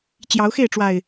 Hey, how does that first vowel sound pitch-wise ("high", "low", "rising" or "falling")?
rising